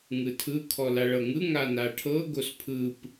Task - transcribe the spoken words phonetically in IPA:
ŋ ɯ tʰ ɯ kʰ ɔ l a ɭ ɤ ŋ ɯ ŋ a n a ʈʰ ɤ ɡ o s pʰ ɯ p

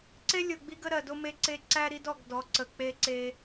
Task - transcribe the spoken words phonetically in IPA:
ǀ e˦ lʲ o˨ ɡ͡b i˦ ɡ ə˦ ɾ ɜ˨ d o˦ m e˦ ǀ e˦ ǀ æ˦ ɾ i˦ d ɔ˨ ɡ d ɔ˨˦ ǀ ə˨ k͡p e˦ ǀ e˦

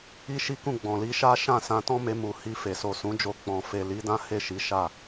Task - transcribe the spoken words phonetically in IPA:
i˦ ʃ i˦ k ũ˦˨ ɡ͡b ɔ̃˨ l i˨˦ ʃ a˦ ʃ ã˦˨ s ã˧ t ɔ̃˦ m e˧ m u˨ h i˧ f e˨ s o˨ s ũ˨˦ d͡ʒ o˧ k͡p ɔ̃˨ f e˨ l i˨˦ d ã˦ h e˦˨ ʃ i˨˦ ʃ a˦˨

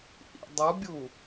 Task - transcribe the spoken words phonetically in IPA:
ʔ ḭ dˤ u bʲ u

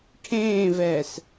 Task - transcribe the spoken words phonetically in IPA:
ʈʰ ẽː v ɛː s

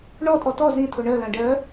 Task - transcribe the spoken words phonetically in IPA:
ɳ ɔ tʼ ɔ t ɔ z ĩ tʰ o ɳ ɜ l ã ɖ ɜ

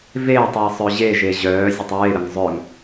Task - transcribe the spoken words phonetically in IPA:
v eː tˤ w ə sˤ œ ʑ e ʒ e ʑ œː zʲ ə tˤ ɹ e ɾ ə ŋ zˤ œ ŋ

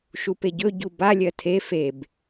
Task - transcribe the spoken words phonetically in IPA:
ʃ u p e ɟ ɵ ɟ u b a lʲ ɜ tʰ e f e b

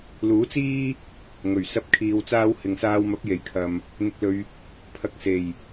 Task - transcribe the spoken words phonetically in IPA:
l uː˨˥ t͡s iː˥ | ŋ ɵ˨˩ ɥ s ɐ˥ p̚ kʰ iː˧ w t͡s aː˥ w h ɪ˨ ŋ s aː˧ w m ɐ˨˥ p̚ j e˨˩ j kʰ ɐ˨ m | n̪ ɪ˧ k̚ l ɵ˧ ɥ | pʰ ɐ˨˥ k̚ s e˨˩ j

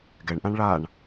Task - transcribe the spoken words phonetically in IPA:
ɡ ɛ ɳ ʔ ã ɳ ɭ a ɳ

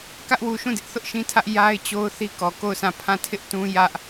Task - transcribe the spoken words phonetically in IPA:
k ä˦ ʔ w u˨ ʃ ũ˦˨ d ɪ˦ ʔ θ ʊ˦ ʔ ʃ ĩ˦ tʰ ä˦ ʔ j a˦ ɪ̯ t͡ɕ o˦ ʊ̯ θ i˦ k ɔ˨ k o˦˨ ʊ̯ sʰ ã˦˨ pʰ ã˦˨ tʰ ɪ˦ ʔ t ũ˦ j ä˦ ʔ

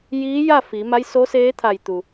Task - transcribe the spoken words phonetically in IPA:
j iː˧˥ j a˥˨ f i˩˧ m a˧˥ j s o˧˥ s eː˧˥ t̪ʰ a˧˩ j t̪ u˩

